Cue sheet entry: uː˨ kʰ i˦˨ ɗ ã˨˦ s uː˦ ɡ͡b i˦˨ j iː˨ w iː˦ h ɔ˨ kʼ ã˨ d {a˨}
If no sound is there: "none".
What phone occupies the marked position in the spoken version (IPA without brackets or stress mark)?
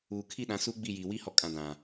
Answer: ã˨